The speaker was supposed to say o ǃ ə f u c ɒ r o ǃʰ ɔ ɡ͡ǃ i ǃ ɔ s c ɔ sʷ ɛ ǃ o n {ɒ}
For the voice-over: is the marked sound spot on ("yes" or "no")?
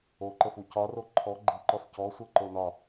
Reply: yes